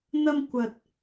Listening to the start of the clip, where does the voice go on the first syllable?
high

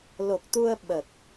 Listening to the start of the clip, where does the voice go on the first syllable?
low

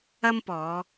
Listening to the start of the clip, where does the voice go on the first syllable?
high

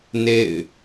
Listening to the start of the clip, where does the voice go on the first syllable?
falling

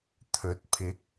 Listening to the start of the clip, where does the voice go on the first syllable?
rising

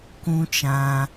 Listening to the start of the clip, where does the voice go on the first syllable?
high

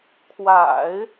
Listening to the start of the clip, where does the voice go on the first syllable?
low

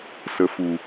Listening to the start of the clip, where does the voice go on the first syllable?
low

